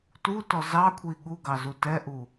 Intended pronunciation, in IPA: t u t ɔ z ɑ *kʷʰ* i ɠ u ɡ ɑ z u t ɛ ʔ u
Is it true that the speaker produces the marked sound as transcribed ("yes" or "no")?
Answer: yes